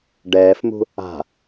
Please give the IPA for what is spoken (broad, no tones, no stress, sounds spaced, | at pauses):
ɖ ɛː f m ṳ | a̤